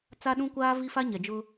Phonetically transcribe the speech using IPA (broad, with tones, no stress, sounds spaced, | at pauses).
t͡s a˦ ɗ ũ˦ kʷ aː˦ v i˦ f a˦ ɲ ɛ˨ d͡ʒ ʊ˦